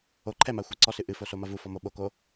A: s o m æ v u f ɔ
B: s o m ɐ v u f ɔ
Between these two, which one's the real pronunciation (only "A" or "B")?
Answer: B